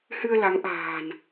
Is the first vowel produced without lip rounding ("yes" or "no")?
yes